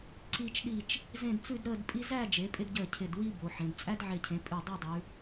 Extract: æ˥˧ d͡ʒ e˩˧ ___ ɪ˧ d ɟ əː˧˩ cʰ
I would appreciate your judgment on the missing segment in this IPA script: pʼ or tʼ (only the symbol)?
pʼ